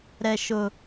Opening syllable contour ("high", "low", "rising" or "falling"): low